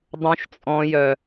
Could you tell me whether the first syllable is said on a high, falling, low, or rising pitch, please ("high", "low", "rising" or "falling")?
high